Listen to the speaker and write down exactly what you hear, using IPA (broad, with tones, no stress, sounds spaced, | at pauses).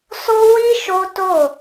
s o˦ w i˦ ʃ o˦ t o˦˨